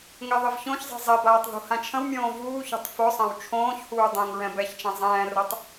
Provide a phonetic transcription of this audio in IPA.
ŋ ɛ ðˤ ɪ v ç õ ç zˤ ɛ̤ zˤ ɛ b aː tˤ ð ṳ h ã t͡ʃʰ ə̃ w mʲ õː v uː ç o̤ tˤ f o sˤ ã w t͡ʃʰ õː ç h uː dˤ ɛ̃ ŋ ɹ ɛ̃ b ɛ ç t͡ʃ ã zˤ ɛ̃ː r o tˤ

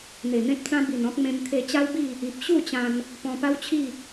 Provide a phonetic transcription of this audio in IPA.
n̪ e˨˩ n̪ ẽ˦ p̚ t͡s ã˦ b i˨˩ n ɔ̃˦ k̚ m ẽ˧ m t̪ʰ e˧ t͡ɕ a˦ w b i˥˧ | i˨ p̚ ɕ u˥˧ t͡ɕ ã˧ n | p ɔ̃˧ p a˦ w t͡ɕʰ i˥˧

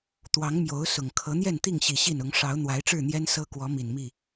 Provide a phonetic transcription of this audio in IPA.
t̪ w ɑ˨˦ ŋ m j o˨˦ ʊ̯ s ʊ˨˩ ŋ kʰ ɤ˨˦ n̪ j ɛ˥˨ n t̪ i˥˨ ŋ ɕ i˨˩ ɕ i˥˨ n ʊ˨˦ ŋ ʂ ɑ˨˦ ʊ̯ n̪ w a˨˦ ɪ̯ ʈ͡ʂ ɻ̩˥˨ n̪ j ɛ˦ n s ɤ˦ k w ɔ˨˦ m i˨˩ n m i˥˨

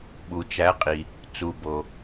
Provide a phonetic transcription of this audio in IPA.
ɓ u˩ t͡ʃ æ˩˧ qʼ i˩ | t͡s u˩ b o˩

